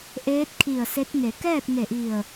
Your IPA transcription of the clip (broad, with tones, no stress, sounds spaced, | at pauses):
ʔ eː˧˥ t̚ kʰ i˧˩ ə̯ s e˧˥ t̚ ŋ e˩˧ k ɛː˥˨ t̚ ŋ e˧˩ ʔ i˧˩ ə̯